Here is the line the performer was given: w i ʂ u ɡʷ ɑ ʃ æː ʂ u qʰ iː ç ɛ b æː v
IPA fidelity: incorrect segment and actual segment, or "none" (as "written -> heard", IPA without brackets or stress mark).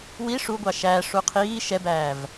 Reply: ç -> ʃ